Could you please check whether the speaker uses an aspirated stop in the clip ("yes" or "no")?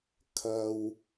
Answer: yes